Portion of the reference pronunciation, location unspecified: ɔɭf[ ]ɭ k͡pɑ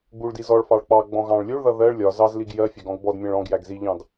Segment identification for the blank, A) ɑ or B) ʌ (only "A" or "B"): A